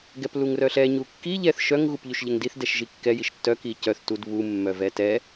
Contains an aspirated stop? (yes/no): no